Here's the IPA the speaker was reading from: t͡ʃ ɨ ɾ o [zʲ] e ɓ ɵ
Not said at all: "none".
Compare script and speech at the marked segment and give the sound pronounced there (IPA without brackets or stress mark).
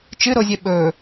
zʲ